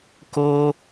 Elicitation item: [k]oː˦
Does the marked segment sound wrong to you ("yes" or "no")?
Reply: no